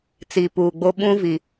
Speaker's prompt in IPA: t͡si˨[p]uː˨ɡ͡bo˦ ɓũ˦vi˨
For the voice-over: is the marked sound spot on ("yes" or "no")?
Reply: yes